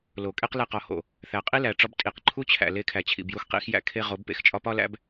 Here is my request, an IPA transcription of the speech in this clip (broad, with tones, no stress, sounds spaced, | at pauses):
l o˨ kʼ e˦ q l e˦˨ q ɒ˨ h o̰˨ | θ æ˨ qʼ i˦ l æ˨ ʈ͡ʂ ɒ˦ b tʼ i˨ q ǃʰ u˦ t͡ɕʰ æ̰˨ l e˦ kʰ æ˨ t͡ɕʰ ḭ˨ b j u˦ x q ḭ˦ x j æ̰˦ kʰ e˦ ʁ o˨˦ b p ḛ˨ x t͡ʃʼ ɒ˦ p ɒ˦ l æ̰˦ b